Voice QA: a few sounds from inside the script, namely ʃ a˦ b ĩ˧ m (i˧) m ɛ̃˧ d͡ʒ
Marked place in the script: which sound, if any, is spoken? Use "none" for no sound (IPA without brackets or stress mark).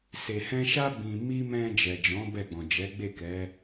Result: i˦